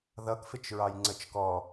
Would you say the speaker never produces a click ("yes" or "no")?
no